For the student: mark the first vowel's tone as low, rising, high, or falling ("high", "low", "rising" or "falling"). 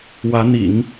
rising